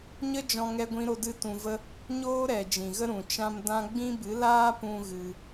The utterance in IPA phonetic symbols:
ɲə˦d͡ʒɔ̃˧ ŋɛ˧ɡʷĩ˧ɾo˧ dɨ˧tũ˨və˧ | ɲoː˦ɾɛ˨ d͡ʒĩ˨ɣə˦ɾũ˨ t͡ʃã˧m dã˦ ɡ͡bĩ˦bɨ˨˦ laː˦pũ˧ ɣɨ˧

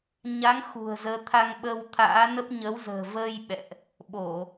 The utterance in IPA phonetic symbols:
ɲa˨˦ŋ xṳ˨˩ə̯zəː˨˦ t̪ʰa˧ŋɓə˧wt̪ʰa̰ː˧˥nə˦˥p̚ ɲə˨˦wzə̤ː˨˩vəː˧j ɓɛ̰˧˨ʔ | ɓo˧˩˨

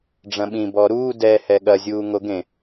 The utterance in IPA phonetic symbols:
ɖ͡ʐɐ̃ɓĩ bɔɾuː dɛ hɛɠɐ zʲuːŋoɡẽ

